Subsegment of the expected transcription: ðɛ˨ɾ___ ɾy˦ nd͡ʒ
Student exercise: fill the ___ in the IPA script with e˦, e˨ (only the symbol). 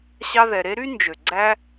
e˦